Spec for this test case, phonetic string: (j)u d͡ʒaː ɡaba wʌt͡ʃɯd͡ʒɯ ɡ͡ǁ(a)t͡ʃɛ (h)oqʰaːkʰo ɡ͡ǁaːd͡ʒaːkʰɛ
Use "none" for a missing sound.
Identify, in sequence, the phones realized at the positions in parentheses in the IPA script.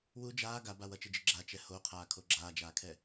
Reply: w, a, h

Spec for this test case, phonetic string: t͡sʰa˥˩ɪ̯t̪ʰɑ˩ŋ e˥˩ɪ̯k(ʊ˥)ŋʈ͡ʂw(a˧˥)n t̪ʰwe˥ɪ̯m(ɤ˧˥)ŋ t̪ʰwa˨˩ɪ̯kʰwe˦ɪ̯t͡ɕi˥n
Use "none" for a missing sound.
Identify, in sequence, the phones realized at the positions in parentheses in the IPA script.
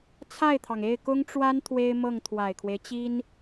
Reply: ʊ˥, a˥, ɤ˥˩

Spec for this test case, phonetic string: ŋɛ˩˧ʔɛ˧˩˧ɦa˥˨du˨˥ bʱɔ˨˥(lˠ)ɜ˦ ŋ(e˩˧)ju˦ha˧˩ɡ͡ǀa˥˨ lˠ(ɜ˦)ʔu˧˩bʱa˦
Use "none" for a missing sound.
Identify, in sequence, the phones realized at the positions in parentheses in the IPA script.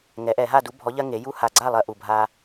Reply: ʎ, e˩˧, ɜ˦

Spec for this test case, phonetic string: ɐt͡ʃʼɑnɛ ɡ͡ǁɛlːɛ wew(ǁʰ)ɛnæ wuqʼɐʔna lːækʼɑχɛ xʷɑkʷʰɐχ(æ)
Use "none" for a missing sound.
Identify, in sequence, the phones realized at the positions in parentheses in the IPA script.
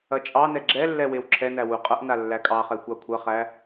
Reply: ǁʰ, æ

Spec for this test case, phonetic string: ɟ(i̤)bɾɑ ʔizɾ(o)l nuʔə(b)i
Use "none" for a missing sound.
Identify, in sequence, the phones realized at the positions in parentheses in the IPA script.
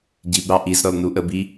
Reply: i, ɔ, b

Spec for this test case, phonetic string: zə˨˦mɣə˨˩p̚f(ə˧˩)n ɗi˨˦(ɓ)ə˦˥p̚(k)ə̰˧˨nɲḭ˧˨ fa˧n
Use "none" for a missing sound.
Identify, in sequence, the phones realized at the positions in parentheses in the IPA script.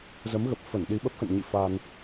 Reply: ə˧˩, ɓ, x

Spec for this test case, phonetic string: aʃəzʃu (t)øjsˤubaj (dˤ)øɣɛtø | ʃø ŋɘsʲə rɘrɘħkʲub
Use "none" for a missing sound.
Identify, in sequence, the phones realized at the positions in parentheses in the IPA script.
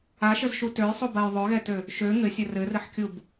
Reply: t, ðˤ

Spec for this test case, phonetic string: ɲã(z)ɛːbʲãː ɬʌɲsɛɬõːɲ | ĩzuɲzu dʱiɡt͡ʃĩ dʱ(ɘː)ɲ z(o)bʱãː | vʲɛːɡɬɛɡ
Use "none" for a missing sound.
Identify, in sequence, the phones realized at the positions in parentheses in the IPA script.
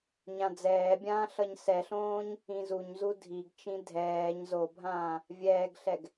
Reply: d͡z, ɛː, o

